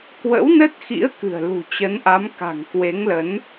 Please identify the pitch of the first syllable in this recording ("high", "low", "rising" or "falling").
rising